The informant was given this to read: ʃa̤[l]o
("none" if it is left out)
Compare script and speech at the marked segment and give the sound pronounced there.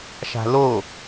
l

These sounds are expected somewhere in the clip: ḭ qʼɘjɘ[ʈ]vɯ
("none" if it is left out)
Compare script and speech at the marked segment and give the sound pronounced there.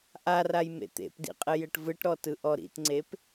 ʈ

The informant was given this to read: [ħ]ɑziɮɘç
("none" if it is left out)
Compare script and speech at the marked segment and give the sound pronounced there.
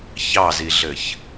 ç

